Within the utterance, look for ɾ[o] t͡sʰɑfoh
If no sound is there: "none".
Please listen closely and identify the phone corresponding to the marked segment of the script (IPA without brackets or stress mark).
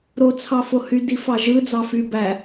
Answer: o